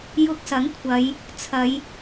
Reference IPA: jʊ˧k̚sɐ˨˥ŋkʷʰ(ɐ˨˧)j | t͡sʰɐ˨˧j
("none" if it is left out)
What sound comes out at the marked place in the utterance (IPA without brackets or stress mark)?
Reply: ɐ˨˧